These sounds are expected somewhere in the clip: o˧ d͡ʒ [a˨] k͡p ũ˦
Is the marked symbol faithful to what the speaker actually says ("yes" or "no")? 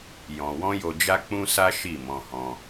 no